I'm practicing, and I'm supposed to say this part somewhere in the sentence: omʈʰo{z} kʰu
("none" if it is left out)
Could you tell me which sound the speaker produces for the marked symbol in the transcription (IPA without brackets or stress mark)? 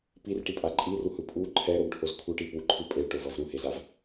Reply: z